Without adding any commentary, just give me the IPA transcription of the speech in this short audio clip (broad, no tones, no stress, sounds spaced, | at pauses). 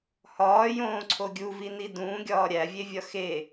h ɒː j õː ǀʰ o ɡʲ u v i n i d ũː ɡʲ ɒː ɾʲ æ vʲ e vʲ ɒ x e